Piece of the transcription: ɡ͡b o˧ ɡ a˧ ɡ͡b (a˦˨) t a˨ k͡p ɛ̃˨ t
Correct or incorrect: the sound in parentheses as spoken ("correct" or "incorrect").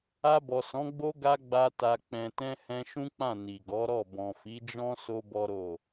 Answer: incorrect